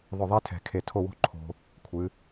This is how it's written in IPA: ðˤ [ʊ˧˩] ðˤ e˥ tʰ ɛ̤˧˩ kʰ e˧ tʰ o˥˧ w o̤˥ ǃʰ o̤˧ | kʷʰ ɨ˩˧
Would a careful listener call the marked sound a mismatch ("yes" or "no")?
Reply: no